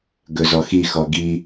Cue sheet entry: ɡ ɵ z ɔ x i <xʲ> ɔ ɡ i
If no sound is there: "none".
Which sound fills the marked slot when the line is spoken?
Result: x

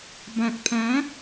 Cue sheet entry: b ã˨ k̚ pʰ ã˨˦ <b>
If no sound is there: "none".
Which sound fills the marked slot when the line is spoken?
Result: none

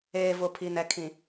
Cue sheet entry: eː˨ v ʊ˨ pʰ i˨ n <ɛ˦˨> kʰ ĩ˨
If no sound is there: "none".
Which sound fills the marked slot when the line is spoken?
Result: ɛ˨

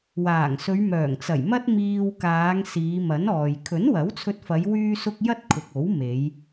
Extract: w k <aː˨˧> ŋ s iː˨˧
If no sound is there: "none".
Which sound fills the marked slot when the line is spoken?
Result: aː˨˧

